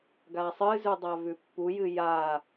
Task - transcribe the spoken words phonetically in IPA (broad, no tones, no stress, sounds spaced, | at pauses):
ɡ a sˤ ɨ z ʉ dˤ a v ʉ pː u j ɨ j a